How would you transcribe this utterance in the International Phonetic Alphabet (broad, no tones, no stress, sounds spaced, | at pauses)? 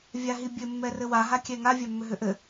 vʲ a ɦ i bʲ ɘ mː ɛ r ɘ w a ɦ a kʲ ɛ ŋ a vʲ a mː ʏ ɦ ʏ ʔ ɘ